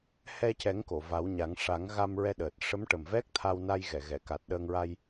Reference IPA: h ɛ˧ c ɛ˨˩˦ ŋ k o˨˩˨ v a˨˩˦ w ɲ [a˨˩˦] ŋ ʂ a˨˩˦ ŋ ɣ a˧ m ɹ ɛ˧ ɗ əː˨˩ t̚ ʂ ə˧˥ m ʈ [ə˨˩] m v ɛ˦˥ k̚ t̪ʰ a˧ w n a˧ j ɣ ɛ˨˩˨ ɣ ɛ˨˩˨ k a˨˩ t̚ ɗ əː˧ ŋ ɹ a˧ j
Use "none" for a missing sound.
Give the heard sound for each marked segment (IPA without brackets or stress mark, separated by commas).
a˨˩˦, ə˨˩